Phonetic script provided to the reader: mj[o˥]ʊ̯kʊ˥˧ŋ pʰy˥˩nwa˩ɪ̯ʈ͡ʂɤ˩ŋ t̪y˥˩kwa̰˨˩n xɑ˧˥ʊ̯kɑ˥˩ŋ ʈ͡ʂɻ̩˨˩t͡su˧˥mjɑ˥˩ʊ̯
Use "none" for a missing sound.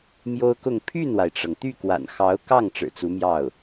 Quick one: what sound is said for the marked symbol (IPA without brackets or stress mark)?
o˥